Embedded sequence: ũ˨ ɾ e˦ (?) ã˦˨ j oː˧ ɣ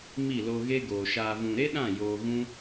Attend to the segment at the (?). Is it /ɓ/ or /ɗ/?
ɗ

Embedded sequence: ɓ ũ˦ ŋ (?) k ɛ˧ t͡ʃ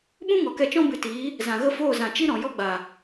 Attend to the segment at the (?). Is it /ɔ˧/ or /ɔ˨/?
ɔ˨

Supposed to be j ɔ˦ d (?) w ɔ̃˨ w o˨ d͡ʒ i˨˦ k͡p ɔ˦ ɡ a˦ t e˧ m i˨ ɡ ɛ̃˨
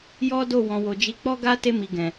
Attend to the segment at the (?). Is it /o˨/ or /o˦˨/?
o˦˨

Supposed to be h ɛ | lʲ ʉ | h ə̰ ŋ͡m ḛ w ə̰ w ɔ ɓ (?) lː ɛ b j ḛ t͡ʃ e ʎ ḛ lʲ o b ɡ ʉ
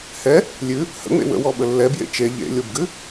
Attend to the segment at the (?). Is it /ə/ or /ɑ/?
ə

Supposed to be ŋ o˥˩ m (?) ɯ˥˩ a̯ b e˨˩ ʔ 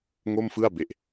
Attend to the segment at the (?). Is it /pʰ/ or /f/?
f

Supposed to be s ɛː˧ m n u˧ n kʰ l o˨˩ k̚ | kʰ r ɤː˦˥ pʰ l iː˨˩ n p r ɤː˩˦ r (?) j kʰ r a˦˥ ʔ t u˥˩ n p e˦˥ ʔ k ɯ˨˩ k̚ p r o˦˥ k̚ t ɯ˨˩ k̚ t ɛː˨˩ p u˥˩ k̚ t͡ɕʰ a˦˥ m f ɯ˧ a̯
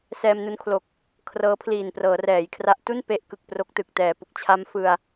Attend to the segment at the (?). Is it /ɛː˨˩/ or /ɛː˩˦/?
ɛː˩˦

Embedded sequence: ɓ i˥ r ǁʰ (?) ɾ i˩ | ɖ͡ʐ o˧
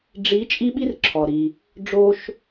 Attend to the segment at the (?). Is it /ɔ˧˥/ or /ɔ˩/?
ɔ˩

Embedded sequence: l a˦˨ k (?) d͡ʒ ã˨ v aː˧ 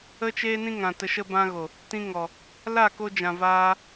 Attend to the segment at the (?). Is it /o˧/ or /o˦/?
o˧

